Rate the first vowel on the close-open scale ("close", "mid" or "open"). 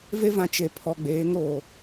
mid